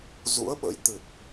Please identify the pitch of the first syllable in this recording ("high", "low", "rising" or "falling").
rising